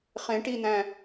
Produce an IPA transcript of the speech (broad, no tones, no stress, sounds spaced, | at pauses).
χ ẽ ʈ i n̪ æ̃